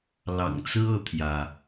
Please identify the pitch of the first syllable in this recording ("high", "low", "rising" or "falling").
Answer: low